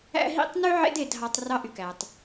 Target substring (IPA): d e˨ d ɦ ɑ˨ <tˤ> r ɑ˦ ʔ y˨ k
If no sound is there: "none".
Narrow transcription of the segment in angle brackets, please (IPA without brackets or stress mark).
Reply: tˤ